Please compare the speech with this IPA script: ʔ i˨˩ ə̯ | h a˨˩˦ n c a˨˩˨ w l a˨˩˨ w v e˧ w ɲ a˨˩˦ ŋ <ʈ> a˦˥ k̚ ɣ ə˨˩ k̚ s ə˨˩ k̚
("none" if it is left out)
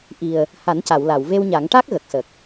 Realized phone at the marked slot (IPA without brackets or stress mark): ʈ